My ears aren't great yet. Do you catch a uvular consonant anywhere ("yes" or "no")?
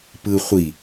yes